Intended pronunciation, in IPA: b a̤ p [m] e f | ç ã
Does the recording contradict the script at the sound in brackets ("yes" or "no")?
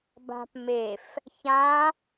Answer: no